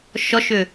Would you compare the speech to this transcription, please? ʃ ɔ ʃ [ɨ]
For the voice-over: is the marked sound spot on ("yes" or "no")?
no